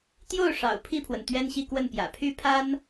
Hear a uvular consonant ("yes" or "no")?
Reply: no